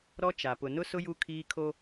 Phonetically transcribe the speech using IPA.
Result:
ɾɔ˦t͡ʃa˨ pʊ˨nʊ˦sʊ˦ ju˦kʰiː˦kʰo˦

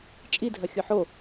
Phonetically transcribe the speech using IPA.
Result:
t͡ʃʼidʱɐxʲʊ ħo

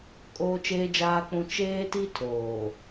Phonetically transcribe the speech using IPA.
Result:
kʼoː˦t͡ʃeː˦d͡ʒaː˦k͡pũ˦ t͡ʃeː˦ti˦ tʰoː˨

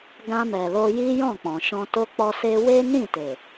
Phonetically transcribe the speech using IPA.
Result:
ɡã˧mɛ˨lo˧ ji˦jɔ̃˦˨k͡pɔ̃˨ʃɔ̃˧ to˦k͡pɔ˦se˦ we˦nĩ˦˨te˨

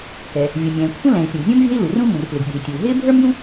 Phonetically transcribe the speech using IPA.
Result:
kɛ˩ | vʲu˩mʲɛ̃ː˩kʷʰə̃˥ lɛ̃˩i̯pʲũ˩ɡzʲũ˥mvʲɛ̤˥i̯ lu˩rũ˥ mũ˩rplɪ˩ɡɓṳ˩i̯tʲuː˩ ɦɪː˥bʱə˞˥mjũ˥

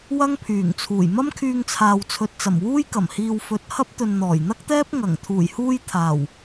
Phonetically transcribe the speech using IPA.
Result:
wɐ˥ŋpʰyː˨˩ŋt͡sʰuː˨˩j mɐ˥mkʰyː˧ŋt͡sʰaː˨wt͡sʰɵ˨t̚ t͡sɐ˨˩mwuː˥j kɐ˨˩mhiː˨w fɵ˨˥t̚hɐ˥p̚t̪ɵ˨n n̪ɔː˨˩jn̪ɐ˥k̚t̪ɛː˥p̚ ŋɐ˨˩ŋ t̪ʰuː˨˩jhuː˧j t̪ʰaː˨˩w

